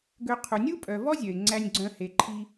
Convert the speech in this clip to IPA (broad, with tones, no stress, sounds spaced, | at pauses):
ɡ ø˨ qʰ u˩ nʲ u˦ pʼ œ˩ v ɔ˥ zʲ œ˩ ɪ̯ ŋ͡ǀ æ˨ nʲ ɡ͡ǀ œ̃˨ h e˩ ǃʰ i˨